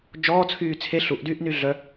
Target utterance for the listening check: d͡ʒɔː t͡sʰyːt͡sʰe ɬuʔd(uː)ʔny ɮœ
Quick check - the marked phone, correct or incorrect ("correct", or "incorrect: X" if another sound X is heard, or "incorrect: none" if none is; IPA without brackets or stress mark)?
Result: incorrect: yː